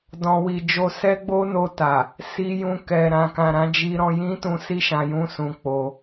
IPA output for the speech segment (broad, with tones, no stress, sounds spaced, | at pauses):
d ɔ̃˨ w i˨ d͡ʒ o˨ s ɛ˧ ɡ͡b o˦ n o˧ t a˨ | s i˧ j ũ˧ k ɛ˨ ɾ ã˨ k ã˨ ɾ ã˨˦ d͡ʒ i˦ ɾ ɔ̃˦ j ĩ˦ t ũ˧ s i˦ ʃ ã˧ j ũ˦ s ũ˧ k͡p o˧